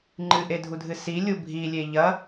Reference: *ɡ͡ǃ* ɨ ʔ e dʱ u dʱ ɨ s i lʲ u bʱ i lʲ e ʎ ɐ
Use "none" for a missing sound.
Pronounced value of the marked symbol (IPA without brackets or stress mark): ŋ͡ǃ